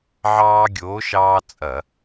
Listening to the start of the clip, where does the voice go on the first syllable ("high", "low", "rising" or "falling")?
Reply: high